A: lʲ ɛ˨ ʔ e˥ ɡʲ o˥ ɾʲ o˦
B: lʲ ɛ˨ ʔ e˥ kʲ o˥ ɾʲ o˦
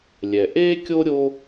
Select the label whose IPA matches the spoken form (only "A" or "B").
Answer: B